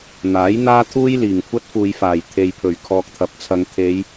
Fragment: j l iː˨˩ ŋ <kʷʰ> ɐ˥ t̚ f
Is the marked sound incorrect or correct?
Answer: correct